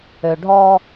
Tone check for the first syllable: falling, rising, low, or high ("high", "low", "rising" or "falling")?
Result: low